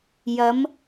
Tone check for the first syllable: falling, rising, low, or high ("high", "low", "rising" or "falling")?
rising